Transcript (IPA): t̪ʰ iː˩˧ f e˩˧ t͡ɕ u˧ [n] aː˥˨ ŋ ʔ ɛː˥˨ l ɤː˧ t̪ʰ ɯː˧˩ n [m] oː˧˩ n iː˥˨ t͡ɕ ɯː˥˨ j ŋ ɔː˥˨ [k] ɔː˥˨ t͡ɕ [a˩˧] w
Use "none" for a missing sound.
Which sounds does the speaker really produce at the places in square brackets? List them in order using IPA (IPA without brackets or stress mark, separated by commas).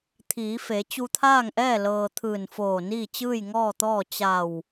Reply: t̪ʰ, f, t̪, a˧˩